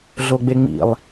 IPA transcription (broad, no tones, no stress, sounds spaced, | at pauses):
ɮ o ɡ͡b e ŋ͡m ḭ lˠ